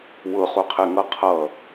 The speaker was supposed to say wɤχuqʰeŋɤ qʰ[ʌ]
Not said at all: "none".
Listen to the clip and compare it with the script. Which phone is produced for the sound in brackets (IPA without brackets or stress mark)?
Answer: ʌ